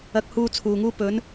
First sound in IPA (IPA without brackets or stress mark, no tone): ɐ